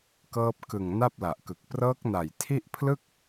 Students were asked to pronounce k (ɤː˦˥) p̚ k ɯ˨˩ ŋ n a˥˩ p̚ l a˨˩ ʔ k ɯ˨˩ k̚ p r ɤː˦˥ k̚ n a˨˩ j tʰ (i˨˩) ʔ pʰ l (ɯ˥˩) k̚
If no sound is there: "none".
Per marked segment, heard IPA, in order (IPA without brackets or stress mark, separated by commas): ɤː˦˥, i˥˩, ɯ˥˩